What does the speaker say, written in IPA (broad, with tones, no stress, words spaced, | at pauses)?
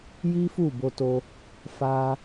ji˦fu˦˨bo˧to˧ | fa˦